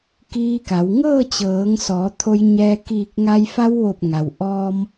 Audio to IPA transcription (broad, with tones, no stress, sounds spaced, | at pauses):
k iː˧ k a˩˧ w ŋ ɤː˥˨ t͡ɕ ɤː˩˧ ŋ s ɔː˩˧ t̪ʰ o˧ j ɲ ɛː˧ k iː˧˩ k̚ ŋ a˧ j f a˧ w ʋ o˧˩ p̚ ŋ a˩ w ʔ ɔː˧ m